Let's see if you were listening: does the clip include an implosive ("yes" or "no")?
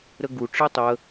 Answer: no